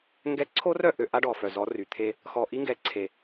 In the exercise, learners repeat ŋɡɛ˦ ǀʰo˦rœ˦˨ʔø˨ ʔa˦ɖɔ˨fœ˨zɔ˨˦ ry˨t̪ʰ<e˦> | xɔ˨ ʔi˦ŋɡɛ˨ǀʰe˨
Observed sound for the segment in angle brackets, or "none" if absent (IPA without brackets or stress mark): e˦